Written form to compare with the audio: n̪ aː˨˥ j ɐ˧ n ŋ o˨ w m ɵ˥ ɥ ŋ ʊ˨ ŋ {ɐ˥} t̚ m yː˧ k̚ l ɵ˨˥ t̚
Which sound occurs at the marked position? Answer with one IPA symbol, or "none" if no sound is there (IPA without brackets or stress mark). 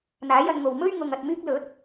ɐ˨